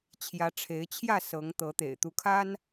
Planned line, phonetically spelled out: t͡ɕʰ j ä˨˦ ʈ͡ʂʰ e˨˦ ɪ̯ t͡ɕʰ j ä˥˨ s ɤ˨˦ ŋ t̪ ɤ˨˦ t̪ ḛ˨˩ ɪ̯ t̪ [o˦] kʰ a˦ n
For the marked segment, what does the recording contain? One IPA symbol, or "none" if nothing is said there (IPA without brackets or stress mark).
u˦